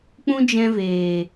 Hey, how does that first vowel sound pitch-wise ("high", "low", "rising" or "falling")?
high